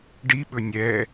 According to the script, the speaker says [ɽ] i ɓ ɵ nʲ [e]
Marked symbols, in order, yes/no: no, no

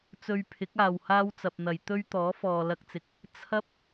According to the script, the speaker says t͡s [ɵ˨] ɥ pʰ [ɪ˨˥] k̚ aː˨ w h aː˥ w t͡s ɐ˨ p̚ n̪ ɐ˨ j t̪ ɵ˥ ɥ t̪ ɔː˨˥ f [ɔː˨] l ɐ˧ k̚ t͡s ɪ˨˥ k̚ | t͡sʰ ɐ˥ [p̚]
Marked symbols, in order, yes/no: no, yes, yes, yes

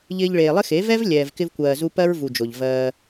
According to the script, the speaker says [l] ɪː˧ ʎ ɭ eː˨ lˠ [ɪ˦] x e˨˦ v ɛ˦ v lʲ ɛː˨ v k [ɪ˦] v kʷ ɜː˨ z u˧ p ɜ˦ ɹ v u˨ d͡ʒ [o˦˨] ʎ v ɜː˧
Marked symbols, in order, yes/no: no, yes, no, no

